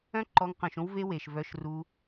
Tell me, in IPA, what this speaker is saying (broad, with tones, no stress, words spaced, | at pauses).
œ̃˦ǃɔ˧ŋ qœ̃˨ʃõ˧wve˧ we˨ʃvœ˧ʃ ru˧